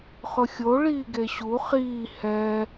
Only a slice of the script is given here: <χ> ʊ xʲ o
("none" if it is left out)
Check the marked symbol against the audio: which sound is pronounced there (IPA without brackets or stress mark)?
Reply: χ